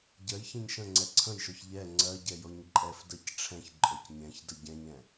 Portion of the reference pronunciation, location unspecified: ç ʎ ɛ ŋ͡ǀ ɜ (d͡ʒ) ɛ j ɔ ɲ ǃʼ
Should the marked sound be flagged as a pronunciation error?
yes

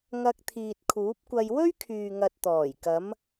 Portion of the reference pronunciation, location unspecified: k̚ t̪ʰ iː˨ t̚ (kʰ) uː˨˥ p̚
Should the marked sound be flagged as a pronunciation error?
no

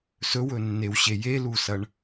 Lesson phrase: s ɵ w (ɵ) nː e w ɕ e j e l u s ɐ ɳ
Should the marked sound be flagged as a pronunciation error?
no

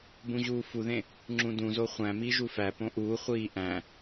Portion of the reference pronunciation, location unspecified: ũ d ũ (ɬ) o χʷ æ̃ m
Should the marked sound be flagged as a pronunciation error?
yes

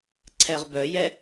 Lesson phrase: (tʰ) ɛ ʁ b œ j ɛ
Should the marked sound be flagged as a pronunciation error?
yes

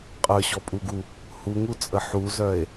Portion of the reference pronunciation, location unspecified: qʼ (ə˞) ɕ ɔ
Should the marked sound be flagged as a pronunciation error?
no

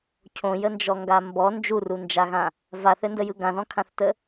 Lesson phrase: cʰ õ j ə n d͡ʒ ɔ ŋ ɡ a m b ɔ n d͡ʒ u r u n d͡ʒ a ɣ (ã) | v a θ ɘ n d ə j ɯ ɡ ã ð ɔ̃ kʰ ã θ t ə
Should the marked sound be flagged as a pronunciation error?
no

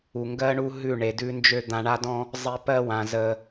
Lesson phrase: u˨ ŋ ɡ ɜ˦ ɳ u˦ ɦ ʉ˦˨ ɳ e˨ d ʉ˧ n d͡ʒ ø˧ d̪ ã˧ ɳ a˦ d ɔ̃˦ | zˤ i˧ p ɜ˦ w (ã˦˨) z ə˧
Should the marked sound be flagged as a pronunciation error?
yes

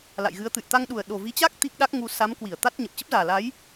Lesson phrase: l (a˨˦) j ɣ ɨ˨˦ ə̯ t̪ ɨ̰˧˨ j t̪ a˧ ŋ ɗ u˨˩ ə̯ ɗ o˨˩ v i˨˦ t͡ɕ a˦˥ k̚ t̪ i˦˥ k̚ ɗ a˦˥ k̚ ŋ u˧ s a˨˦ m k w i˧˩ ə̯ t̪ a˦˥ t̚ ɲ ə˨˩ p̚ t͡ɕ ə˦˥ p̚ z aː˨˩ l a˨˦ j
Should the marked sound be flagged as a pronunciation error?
yes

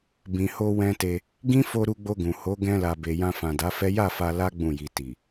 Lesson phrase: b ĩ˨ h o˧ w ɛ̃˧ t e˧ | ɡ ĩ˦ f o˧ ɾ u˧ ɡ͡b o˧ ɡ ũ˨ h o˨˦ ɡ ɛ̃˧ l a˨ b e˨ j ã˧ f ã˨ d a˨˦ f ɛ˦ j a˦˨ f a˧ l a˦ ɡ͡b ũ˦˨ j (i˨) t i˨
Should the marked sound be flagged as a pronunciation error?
yes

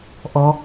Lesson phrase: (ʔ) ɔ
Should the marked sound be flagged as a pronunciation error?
no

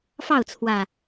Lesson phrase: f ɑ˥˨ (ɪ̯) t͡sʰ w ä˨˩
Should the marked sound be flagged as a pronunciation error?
yes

